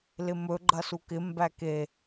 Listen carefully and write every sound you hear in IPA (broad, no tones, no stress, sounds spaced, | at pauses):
l ɪ m ɵ ɡ͡ǃ ɐ s u k ɪ m b æ k e